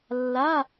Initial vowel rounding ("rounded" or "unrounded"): unrounded